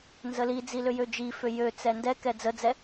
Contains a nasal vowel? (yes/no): no